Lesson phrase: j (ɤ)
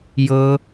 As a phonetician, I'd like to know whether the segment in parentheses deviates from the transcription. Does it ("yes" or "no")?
no